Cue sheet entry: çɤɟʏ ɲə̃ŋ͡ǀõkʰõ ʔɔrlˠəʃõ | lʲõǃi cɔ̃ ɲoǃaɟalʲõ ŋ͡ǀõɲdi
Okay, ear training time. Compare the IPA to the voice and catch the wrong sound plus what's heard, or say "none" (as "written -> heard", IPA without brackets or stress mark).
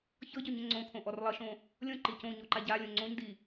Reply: ɔ̃ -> õ